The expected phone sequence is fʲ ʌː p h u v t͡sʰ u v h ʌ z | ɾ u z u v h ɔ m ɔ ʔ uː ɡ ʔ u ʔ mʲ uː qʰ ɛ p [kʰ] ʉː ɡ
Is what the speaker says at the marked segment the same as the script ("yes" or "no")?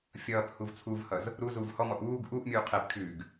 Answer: yes